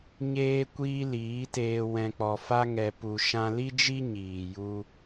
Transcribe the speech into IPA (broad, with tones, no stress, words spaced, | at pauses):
ɲeː˧kʷiː˧ liː˨˦teː˧ wɛ̃˧k͡pɔ˧ fa˦ŋɛ˧ pu˧ʃã˦ li˦d͡ʒi˦ɲiː˨ ju˦